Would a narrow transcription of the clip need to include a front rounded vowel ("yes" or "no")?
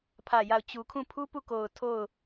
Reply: no